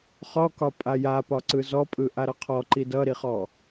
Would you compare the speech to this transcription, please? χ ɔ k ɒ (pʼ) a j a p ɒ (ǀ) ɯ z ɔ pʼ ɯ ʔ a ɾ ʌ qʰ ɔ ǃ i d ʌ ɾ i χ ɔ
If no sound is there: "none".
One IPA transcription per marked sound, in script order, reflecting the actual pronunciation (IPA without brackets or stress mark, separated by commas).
pʼ, ǀ